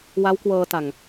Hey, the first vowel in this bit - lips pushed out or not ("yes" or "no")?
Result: no